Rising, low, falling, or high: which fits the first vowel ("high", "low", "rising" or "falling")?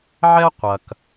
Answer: high